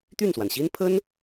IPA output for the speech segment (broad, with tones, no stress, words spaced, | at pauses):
t̪y˥˩nswa˩nɕi˥npʰə˥n